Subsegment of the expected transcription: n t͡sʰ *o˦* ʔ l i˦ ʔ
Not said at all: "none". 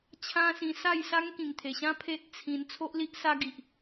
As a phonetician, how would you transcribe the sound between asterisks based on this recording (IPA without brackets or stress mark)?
o˦